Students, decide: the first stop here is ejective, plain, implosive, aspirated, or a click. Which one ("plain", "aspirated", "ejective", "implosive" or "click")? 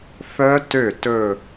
plain